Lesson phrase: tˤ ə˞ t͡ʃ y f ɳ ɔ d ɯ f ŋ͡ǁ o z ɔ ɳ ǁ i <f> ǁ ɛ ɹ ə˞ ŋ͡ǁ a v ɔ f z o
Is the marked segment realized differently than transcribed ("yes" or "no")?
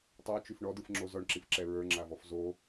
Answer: no